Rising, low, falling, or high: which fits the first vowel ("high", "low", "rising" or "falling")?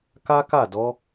high